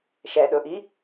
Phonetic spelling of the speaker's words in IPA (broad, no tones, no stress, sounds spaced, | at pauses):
ʃ ɛ ɗ ɵ ʔ i